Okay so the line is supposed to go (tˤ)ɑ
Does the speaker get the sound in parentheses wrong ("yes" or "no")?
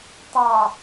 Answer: no